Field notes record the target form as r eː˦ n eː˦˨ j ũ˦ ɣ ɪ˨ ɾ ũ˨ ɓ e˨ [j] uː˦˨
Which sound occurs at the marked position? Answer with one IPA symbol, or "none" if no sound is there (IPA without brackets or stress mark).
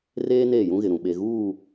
ɣ